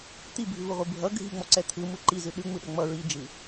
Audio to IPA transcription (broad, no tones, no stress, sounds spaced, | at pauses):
t̪ i bʱ ʉ v ɯ ʁʷ i bʱ ʌ ɡʱ i ŋ͡m ɔ ǀ ɛ t̪ʰ ɯ m ɯ ǃ i z ɯ ɗ ʉ ŋ͡m ɯ ɗ ʌ ŋ͡m ʌ ɹ i d͡ʒ ɯ